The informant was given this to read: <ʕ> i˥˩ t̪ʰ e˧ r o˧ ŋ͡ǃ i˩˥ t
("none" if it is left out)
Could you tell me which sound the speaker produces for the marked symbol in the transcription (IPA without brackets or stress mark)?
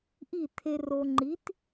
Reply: ʔ